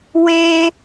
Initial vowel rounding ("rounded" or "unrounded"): unrounded